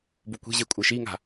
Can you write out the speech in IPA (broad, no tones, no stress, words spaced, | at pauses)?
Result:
bukʷi̤ʑe kʷʼɘʃiŋa̤